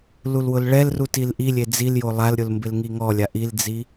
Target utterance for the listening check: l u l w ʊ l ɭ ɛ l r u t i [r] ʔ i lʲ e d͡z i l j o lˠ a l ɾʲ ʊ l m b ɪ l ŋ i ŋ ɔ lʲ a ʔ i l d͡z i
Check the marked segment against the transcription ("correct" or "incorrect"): incorrect